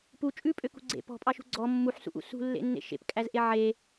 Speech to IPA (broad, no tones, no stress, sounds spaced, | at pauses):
p u t͡ʃʼ ʉ pʼ ø k ṳ ɡ͡ǀ ḛ p ɔ̤ pʼ ɑ ʃ ṳ ɡ͡ǀ ɔ mː u ħ s ṵ ʔ ṵ s ṳ lː ḛ nː ḛ ʃ ḛ p kʼ æ z ʔ e ʕ e